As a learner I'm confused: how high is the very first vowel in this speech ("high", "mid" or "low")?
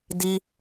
high